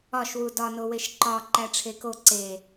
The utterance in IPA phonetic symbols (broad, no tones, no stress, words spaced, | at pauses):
ɒʃwu dɒnoweʃ ǃɒ ǃæʈ͡ʂʰeko ǀe